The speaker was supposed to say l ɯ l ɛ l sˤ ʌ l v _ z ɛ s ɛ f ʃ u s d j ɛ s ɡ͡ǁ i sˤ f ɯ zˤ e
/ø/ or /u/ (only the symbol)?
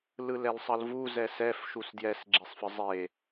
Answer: u